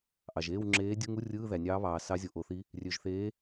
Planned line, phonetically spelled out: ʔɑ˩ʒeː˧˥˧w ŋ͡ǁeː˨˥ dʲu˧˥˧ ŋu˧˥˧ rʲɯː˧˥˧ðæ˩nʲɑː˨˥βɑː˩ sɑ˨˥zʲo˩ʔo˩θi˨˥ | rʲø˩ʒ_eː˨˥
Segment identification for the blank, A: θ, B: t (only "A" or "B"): A